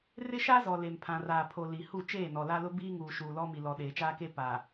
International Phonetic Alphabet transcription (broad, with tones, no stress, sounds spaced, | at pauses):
r ɪ˦ ʃ a˦ z ɔ˨ l e˨ m pʰ ã˨ r aː˨ pʰ o˨ l i˨ h u˦˨ t͡ʃ eː˦˨ n ɔ˨ l a˦ l ʊ˦ b iː˦ ŋ uː˨ ʃ uː˨ l ɔ˦ m i˨ l ɔ˨ ɗ eː˨ t͡ʃ aː˦ k e˦ p a˨